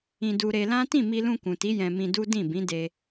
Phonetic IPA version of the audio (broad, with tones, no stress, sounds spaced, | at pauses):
ĩ˧ d u˧ ɾ e˧ l ã˦ t ĩ˦˨ m i˧ l ũ˧ k ũ˨ t i˨˦ j ɛ̃˧ m ĩ˧ d u˦ d ĩ˦˨ b ĩ˨˦ d e˧